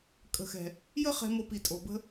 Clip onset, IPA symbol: kʼ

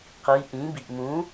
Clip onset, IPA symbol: q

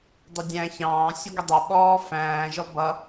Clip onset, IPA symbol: dˤ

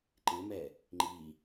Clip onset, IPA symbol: ǃ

